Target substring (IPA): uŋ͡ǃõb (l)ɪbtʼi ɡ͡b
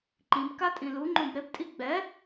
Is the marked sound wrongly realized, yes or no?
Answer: yes